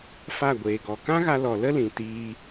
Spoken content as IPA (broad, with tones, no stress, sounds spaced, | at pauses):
f a˦˨ ɡʷ eː˨ ɡ ɔ˨ k ã˦ ɣ a˧ l ɔ˨ l ə˦ l ĩ˨ t iː˧